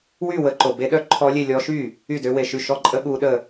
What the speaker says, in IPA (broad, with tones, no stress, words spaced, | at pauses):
wy˥˩ wə˦˥ǃo˧ be˦˥ɗœ˦˥ ǃʰɔ˦˥lʲe˥˧lʲɔ˦˥ ʃy˥˩ | y˥˩dø˦˥we˧ʃy˥˩ ʃɔ˥˧ǃʼə˦˥ ɠu˦˥ɗə˥˧